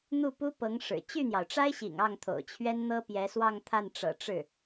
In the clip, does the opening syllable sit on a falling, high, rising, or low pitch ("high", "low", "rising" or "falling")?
falling